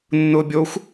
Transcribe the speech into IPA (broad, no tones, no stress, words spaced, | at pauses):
nːʊːbʲoxʷ